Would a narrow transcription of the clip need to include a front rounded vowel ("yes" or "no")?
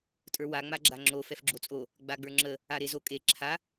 no